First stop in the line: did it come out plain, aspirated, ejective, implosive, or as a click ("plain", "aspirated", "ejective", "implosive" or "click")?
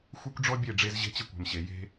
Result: plain